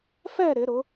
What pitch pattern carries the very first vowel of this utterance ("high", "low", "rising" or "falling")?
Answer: falling